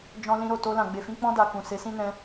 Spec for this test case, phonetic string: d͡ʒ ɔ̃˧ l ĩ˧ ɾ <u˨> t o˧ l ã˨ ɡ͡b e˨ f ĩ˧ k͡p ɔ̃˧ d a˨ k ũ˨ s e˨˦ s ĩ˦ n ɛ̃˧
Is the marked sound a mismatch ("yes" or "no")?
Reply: yes